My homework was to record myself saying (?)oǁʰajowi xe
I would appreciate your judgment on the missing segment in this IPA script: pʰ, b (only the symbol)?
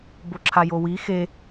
b